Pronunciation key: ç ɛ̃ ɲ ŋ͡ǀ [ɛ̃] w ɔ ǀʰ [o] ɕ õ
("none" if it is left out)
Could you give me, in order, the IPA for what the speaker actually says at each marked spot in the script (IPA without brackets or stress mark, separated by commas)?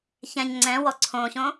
ɛ̃, õ